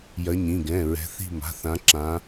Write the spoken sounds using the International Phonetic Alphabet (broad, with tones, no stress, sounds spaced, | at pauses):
j ɐ˨˦ ɲ ĩ˩˧˩ ɡ ɛ̃˩˧˩ ɹ ɛ̤˨˦ θ i̤˥˧ m a̤˩˧˩ θ ã˨˦ ǁ ã˨˦